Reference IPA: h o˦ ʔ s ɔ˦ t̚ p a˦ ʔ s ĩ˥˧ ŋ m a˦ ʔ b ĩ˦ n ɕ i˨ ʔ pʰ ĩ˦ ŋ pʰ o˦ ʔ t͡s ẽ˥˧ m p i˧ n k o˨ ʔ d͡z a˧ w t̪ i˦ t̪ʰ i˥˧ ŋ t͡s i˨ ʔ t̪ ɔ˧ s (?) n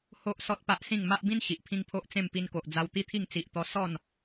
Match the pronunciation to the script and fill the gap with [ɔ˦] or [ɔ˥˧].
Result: ɔ˥˧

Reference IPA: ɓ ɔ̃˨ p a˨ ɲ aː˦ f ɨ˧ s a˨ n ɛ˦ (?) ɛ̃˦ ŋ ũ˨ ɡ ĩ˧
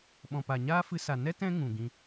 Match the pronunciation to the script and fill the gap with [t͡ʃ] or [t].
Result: t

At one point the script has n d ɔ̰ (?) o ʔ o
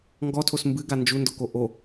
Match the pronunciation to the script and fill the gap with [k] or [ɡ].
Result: k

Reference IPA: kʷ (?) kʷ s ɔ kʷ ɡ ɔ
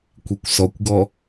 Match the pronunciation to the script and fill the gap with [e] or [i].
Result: i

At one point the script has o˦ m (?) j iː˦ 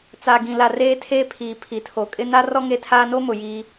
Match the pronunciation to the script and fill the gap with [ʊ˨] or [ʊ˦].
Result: ʊ˨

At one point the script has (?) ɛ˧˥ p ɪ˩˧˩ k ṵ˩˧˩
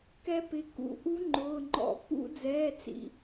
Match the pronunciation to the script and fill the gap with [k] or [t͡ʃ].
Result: k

